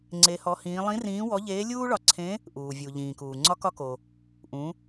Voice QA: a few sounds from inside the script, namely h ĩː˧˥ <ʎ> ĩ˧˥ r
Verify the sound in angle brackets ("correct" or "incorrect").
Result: incorrect